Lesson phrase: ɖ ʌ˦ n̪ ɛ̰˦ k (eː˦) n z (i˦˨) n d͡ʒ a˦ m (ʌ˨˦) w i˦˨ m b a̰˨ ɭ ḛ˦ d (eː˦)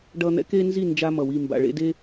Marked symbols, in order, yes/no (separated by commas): no, yes, no, no